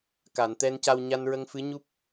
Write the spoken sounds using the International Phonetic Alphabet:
k a˨˩˨ n t̪ ɛ˧ n c a˧ w ɲ a˧ n ɹ ə˧ ŋ f ɨ˧˥ ɲ u˦˥ p̚

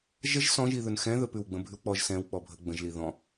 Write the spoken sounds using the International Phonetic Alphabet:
ʒ ə ʒ s ɔ̃ ʒ i ð ɵ n x ɛ̃ ð ɵ p ʉ w ɡ͡b ə̃ bʱ ʉ w k͡p ɔ ʒ s ɛ̃ w k͡p ɔ bʱ ə ɡ͡b ə̃ ʒ l i ð ɔ̃

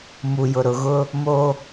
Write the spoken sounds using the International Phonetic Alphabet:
m u˨ j ʊ˨ ɾ ʊ˨ ɣ ʊ˦ | m o˦

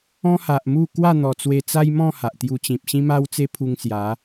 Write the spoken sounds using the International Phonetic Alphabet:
ɔ̃˦ h a˨ ʔ m u˥˧ k w a˥˧ n̪ ɔ˨˩ t͡s w e˧ t͡s a˦ j m ɔ̃˥˧ h a˨ ʔ t̪ j u˧ t͡ɕ ĩ˨ p̚ ɕ ĩ˦ m a˦ w t͡s e˦ pʰ u˧ ŋ s j a˨˦

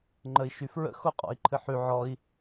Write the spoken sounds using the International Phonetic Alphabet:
ŋ͡ǃ ə i̯ ʃ y f ɹ ə̰ x o qʼ ɔ̰ i̯ ǃʰ ɨ ħ y ʕ ɔ i̯

